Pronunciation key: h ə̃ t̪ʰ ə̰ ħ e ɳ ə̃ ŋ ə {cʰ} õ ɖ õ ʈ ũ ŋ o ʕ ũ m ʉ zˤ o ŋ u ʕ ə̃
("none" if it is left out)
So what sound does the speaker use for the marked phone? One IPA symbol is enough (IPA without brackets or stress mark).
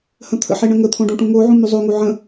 t̪ʰ